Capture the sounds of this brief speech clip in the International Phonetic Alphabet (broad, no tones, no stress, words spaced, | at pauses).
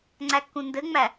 ŋ͡ǀækːũndɘŋ͡mæ